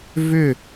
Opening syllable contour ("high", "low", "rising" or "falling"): falling